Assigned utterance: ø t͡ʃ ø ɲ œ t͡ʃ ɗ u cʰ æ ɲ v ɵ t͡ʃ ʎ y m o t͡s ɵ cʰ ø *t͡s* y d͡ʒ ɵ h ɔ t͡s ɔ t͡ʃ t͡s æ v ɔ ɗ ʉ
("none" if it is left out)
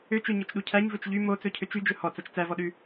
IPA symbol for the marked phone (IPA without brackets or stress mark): t͡ʃ